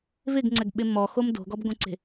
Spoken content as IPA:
v ɪ ɡ ŋ͡ǀ ɛ ɡ ɓ ɪ m ɔ x o m d o̤ ɡ ɔ b ɡ õ ǀ e̤

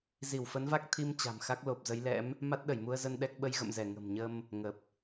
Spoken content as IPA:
z i˧˩ w f ə˨˦ n v a˦˥ k̚ t̪ʰ i˧ m t͡ɕ a̤˨˩ m x a˦˥ k̚ l o˨˩ p̚ z ə˨˦ j l ɛ̰˧˥ m | m a˦˥ t̚ ɗ ə˧˩ j m u˧ ə̯ z ə˧ n ɗ ɛ˦˥ k̚ ɓ ə˧ j ɣ ə̰˧˨ m z ɛ˧˩ ŋ ə̤˨˩ m ɲ ə˧ m | ŋ ə˨˩ p̚

